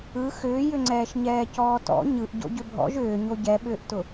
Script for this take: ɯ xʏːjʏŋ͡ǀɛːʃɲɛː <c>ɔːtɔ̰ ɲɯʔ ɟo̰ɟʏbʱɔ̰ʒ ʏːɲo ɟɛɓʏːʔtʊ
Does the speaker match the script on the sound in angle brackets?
yes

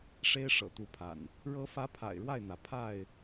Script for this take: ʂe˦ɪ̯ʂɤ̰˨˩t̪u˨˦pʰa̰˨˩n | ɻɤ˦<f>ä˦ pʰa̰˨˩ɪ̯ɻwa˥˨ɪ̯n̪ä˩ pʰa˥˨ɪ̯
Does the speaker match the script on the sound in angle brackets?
yes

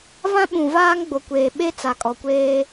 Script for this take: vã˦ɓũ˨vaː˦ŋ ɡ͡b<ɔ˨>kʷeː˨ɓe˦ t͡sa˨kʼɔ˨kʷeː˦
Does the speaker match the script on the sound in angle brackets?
no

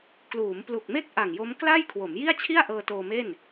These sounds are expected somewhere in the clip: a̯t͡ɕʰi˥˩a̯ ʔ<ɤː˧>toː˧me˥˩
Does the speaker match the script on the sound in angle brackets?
yes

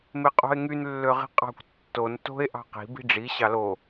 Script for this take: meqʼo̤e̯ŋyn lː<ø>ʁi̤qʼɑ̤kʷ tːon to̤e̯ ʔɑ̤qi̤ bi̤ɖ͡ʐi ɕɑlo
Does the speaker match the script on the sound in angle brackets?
yes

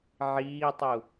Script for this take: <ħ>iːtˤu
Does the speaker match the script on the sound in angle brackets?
no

